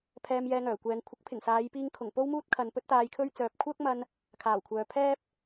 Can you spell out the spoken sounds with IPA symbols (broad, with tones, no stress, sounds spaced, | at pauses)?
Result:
pʰ ɛː˧ m j ɛː˧ ŋ œː˨˩ kʷ ɛː˨˧ ŋ kʷʰ ɐ˨˥ k̚ pʰ ɪ˨˩ ŋ s aː˨˧ j p iː˧ ŋ kʰ ʊ˨˩ ŋ p o˥ w m uː˥ t̚ kʰ ɐ˨ n p ɵ˥ t̚ t̪ aː˧ j kʰ ɵ˥ ɥ t͡s œː˨ p̚ kʷʰ œː˥ k̚ m ɐ˧ n | kʰ aː˨˩ w kʷʰ œː˨ pʰ ɛː˥ p̚